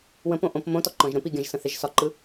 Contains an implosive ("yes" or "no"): no